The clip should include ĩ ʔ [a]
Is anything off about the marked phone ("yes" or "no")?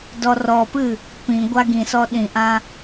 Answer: yes